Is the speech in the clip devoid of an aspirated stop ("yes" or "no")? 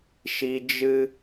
yes